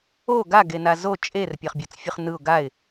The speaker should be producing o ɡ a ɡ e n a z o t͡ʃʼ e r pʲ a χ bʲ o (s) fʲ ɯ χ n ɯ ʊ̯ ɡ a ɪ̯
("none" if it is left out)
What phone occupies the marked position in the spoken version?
t͡s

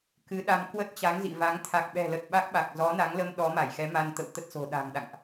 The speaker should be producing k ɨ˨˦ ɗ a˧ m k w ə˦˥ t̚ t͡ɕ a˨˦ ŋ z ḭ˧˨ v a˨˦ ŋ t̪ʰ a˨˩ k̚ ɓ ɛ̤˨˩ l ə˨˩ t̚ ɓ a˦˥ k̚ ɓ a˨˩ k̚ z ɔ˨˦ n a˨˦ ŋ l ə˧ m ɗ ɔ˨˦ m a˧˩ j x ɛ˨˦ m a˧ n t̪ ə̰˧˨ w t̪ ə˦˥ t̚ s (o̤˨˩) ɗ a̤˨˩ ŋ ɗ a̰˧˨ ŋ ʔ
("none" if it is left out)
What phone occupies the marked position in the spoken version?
o̤˨˩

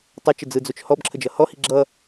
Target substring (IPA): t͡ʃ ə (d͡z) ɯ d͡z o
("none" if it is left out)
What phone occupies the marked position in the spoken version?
d͡z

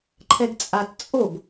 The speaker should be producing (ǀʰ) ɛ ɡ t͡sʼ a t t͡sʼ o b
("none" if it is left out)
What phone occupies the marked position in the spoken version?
ǃʰ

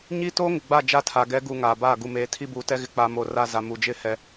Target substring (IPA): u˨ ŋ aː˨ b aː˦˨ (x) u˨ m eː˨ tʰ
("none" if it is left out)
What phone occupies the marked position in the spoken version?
ɡ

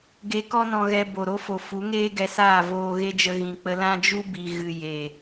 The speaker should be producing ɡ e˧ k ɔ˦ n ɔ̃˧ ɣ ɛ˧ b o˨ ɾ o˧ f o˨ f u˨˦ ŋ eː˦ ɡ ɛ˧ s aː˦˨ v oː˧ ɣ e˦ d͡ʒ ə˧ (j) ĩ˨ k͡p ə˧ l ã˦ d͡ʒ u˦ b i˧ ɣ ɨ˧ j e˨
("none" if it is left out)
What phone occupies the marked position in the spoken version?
ɣ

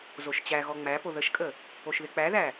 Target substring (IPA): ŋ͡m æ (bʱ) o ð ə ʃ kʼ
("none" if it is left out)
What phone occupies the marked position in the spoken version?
p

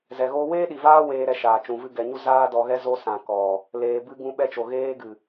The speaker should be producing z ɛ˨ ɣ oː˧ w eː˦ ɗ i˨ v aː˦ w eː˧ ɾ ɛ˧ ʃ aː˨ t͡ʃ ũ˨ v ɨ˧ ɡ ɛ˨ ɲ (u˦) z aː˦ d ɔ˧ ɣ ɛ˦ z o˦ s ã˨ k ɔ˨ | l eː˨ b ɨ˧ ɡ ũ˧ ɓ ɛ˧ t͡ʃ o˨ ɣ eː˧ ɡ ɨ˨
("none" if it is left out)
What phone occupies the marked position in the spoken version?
u˦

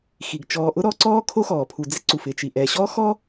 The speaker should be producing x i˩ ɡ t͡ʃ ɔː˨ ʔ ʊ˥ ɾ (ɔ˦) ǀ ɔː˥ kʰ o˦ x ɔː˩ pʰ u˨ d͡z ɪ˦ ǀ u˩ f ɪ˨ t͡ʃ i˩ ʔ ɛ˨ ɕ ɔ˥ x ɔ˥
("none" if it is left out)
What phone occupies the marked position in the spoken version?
ɔ˦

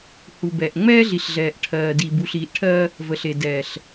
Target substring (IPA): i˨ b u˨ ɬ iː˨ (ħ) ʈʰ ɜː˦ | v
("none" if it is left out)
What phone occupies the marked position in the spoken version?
ʔ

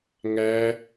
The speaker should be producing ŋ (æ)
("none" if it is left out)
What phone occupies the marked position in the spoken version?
æ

